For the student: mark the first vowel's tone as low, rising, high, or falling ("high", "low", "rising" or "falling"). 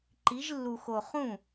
rising